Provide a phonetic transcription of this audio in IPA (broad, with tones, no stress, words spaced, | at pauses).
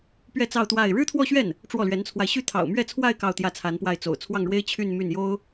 pɥɛ˥˧t͡sɑ˥˧ʊ̯ t̪wa˥˩ɪ̯ ɻɻ̩˥t̪ʰwɔ˥˧ɕɥɛ˥˩n | ʈ͡ʂwɔ˥˩lɥɛ˧˥nt͡sʰwa˧ɪ̯ ɕy˥˩t̪ʰɑ̰˨˩ʊ̯mɥɛ˥˧t͡sʰwa˥˧ɪ̯ kɑ˥˧ʊ̯t̪jä˥˩t͡sʰa˧˥npwa˥˩ɪ̯ t͡so̰˨˩ʊ̯ t͡sʰwɑ˥˩ŋɻwe˥ɪ̯ t͡ɕʰy˥˧n my˥˩njo˥ʊ̯